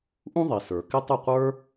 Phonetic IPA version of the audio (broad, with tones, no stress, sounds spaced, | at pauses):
ʔ ũ˦ ðˤ i˨ s ə˞˨ k ɪ˦ tˤ ʊ˦˨ qʷ ə˞˦